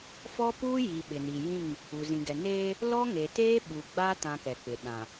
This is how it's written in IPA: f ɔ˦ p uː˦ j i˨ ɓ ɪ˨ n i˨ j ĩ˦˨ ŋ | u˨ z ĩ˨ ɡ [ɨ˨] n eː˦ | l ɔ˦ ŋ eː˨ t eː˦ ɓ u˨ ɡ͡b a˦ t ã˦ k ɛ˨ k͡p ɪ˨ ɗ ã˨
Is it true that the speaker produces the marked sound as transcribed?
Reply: no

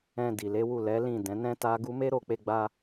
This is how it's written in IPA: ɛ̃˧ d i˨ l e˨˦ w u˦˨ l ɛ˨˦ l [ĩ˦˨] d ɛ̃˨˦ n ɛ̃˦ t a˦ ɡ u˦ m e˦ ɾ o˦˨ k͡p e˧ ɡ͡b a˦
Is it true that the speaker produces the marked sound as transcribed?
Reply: yes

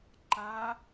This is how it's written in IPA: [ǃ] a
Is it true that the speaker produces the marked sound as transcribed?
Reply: yes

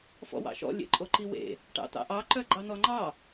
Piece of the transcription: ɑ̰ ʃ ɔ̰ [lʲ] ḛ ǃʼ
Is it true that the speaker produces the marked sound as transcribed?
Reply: yes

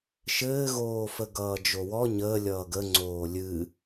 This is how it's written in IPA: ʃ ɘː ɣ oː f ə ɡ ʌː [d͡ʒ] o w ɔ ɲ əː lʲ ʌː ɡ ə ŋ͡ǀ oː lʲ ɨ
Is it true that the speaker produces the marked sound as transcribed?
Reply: yes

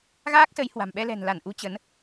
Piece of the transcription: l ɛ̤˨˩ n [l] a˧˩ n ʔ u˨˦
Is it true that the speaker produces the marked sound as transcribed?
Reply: yes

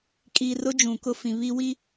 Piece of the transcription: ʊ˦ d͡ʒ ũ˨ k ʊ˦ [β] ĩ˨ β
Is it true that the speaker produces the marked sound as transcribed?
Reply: no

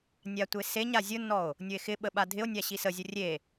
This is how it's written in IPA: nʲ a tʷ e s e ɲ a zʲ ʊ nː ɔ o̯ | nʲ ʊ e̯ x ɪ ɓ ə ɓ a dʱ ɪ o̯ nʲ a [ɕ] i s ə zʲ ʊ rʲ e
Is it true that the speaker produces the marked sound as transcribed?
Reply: yes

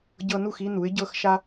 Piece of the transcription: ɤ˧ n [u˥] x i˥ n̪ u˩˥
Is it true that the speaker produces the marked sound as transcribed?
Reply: no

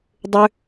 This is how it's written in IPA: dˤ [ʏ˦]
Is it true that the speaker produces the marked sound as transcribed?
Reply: yes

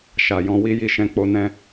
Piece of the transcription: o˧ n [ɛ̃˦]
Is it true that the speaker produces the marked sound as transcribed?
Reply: yes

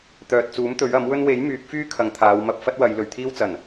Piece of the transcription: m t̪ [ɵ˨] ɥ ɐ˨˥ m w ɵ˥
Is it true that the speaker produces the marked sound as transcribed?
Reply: no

